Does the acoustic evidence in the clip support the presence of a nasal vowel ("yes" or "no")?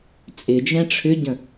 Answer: yes